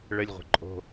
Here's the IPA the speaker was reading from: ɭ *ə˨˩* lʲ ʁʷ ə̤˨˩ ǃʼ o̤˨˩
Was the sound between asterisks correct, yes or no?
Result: yes